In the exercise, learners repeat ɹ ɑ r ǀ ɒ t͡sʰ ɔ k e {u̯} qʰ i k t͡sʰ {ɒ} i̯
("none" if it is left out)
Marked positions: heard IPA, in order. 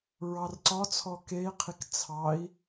i̯, ɑ

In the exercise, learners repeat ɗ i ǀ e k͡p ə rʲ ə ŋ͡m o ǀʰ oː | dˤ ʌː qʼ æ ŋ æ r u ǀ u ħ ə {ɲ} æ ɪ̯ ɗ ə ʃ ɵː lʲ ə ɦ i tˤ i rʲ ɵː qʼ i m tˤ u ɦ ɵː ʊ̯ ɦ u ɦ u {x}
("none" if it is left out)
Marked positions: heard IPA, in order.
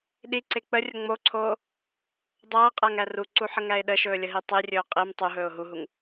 ŋ, ŋ

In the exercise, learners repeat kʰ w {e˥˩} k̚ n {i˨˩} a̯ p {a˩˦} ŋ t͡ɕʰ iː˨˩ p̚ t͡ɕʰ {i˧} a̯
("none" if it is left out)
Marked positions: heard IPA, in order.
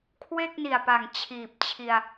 e˥˩, i˨˩, a˨˩, i˧

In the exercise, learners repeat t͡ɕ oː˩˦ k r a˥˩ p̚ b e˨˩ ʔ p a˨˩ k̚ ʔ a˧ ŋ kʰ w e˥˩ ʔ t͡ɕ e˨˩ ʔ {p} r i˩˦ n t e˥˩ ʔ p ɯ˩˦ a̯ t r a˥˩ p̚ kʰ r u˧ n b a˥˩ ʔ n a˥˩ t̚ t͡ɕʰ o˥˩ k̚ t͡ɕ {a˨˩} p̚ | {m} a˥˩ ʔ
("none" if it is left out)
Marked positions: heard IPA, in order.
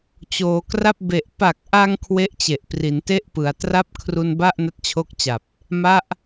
p, a˨˩, m

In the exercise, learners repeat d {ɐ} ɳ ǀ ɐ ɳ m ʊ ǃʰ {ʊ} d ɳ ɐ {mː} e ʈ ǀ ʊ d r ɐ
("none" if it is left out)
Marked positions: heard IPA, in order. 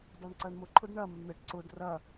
ɑ, ʊ, mː

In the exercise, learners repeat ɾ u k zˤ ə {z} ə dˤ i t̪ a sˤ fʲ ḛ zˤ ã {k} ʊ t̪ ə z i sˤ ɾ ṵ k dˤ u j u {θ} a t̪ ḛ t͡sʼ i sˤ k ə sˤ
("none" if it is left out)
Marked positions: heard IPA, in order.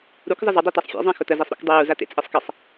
z, x, z

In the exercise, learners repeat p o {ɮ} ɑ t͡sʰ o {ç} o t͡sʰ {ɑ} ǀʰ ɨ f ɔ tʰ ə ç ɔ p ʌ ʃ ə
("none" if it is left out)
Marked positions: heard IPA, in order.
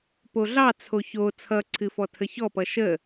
ɮ, ç, ʌ

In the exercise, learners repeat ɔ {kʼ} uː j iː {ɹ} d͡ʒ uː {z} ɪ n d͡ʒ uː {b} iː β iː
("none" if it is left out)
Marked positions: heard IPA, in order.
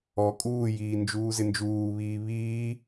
kʼ, n, z, β

